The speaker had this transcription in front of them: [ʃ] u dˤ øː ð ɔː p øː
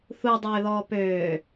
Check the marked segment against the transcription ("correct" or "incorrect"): incorrect